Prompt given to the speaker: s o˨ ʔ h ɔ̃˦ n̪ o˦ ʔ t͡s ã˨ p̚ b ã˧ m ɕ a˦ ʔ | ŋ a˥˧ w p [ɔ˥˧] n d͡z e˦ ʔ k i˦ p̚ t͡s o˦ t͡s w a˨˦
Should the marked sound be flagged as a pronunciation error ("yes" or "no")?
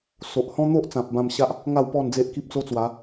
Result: no